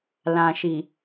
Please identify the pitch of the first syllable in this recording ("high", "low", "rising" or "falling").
low